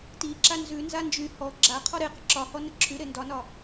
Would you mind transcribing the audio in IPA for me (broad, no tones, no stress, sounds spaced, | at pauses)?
t i ǁ a n z ʉ n z a n d͡ʒ y h ɔ ɡ͡ǁ a qʰ ɔ ɾ e q ə ǁ ɒ h ɔ n ə ǁʰ y ɾ e n d ɒ n ɒ